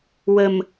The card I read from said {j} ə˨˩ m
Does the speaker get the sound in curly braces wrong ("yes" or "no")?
yes